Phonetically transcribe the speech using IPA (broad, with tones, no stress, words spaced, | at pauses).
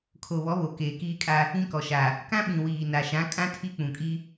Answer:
kʰo˨βɔ˨˦βo˨ keː˨kiː˦kʼa˦ | ĩ˦kɔ˨ʃa˨ | kã˦ɓĩ˨ wiː˨na˨ʃã˨˦kʼã˦ tʰi˦k͡pũ˨kʼi˦